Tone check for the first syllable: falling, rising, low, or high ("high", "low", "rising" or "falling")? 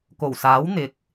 low